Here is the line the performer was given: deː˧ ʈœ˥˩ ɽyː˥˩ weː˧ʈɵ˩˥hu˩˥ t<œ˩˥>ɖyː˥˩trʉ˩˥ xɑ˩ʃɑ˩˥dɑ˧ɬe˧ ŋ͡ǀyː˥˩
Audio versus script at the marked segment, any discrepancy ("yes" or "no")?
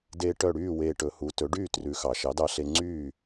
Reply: yes